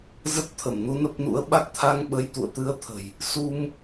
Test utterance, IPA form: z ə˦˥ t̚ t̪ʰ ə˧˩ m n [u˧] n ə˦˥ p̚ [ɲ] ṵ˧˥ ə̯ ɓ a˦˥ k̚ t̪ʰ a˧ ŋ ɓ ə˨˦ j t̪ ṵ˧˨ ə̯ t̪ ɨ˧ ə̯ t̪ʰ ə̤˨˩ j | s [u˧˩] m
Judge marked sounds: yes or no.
yes, no, no

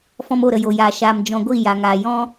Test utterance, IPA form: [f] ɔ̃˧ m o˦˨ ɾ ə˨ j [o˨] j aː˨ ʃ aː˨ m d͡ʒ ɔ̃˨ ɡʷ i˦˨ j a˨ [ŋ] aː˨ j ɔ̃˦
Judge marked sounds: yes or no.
yes, yes, yes

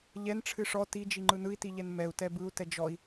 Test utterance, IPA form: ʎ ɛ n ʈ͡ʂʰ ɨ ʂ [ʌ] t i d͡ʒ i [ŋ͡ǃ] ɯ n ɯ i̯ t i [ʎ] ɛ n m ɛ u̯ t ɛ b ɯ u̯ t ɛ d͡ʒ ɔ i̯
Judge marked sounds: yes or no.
no, yes, yes

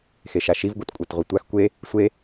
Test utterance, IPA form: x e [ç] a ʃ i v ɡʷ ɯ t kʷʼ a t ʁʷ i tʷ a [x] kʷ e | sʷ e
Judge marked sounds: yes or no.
no, yes

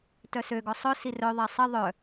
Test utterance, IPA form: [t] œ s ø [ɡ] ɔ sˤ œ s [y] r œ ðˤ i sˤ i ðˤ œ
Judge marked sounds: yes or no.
yes, yes, no

